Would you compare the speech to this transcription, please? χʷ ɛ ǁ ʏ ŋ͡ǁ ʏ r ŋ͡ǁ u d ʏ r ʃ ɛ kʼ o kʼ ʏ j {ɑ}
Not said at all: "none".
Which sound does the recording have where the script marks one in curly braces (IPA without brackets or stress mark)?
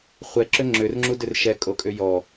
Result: ɔ